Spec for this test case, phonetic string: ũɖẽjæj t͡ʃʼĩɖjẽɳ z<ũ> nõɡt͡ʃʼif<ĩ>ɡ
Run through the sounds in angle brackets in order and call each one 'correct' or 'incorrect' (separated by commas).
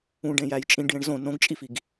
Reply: incorrect, incorrect